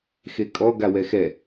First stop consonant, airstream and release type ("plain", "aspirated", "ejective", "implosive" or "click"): ejective